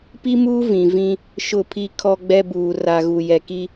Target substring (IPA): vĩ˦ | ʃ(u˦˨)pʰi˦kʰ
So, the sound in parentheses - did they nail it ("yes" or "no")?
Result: no